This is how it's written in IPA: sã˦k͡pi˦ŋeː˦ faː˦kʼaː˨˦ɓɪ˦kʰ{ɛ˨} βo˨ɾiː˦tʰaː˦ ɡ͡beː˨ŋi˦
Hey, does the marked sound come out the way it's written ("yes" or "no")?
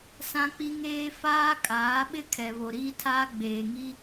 yes